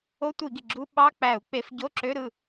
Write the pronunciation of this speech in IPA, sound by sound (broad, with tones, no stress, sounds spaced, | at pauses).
o˧˥˧ tʷ i˧˩˧ ɡ i˩ ɡ͡ǁ u˧˥˧ ɓ ɑ˧˥˧ k͡p æ˧˩˧ u̯ k͡p e˧˩˧ f ɟ o˧˥˧ ǁ ø˧˥˧ ɾ ɯ˥˩